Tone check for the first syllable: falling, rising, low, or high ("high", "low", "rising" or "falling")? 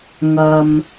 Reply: low